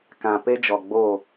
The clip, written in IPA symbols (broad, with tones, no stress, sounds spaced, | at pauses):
k ã˨ p e˦ d͡ʒ ɔ˨ ɡ͡b o˦˨